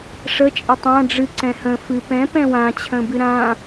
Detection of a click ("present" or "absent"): present